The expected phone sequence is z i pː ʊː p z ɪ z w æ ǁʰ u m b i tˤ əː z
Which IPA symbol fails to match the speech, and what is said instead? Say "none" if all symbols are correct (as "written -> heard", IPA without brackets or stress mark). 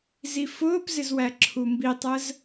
pː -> f